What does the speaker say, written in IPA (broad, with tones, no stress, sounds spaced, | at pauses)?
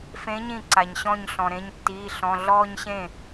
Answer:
f ẽ˨˥ ɲ ĩ˥˩ ǀ a˩ ɲ ɕ ɔ̃˥˩ ɲ ɬ ɔ̃˩ ɾ ẽ˩˧˩ ɲ tː iː˩˧˩ ɬ ɔ̃˩˧˩ ɮ ɔː˥˧ ɲ ɕ ẽ˥˩